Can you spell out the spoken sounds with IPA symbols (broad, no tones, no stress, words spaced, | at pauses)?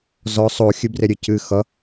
zɔ sˤo xʲɨbreɾʲɨ cɨ xʌ